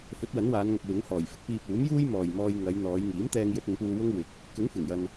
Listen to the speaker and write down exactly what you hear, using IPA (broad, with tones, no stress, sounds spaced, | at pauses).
f ɵ˨˥ t̚ w ɐ˨˥ n w aː˨˧ n ŋ ʊ˨ k̚ w ɪ˨˥ ŋ h ɔː˨˩ j f ɪ˥ k̚ p iː˧ p̚ uː˨˥ m j uː˥ j m ɔː˨ j m ɔː˧ j ŋ ɐ˨˧ j n̪ ɔː˨˧ j ŋ iː˨˥ m t̪ ɛː˧ ŋ j ɵ˧ t̚ ɪ˨˧ ŋ p uː˧ w ʊ˥ ŋ w ɪ˧ k̚ | k ɪ˨˥ ŋ f ɪ˨˩ ŋ j ɐ˧ n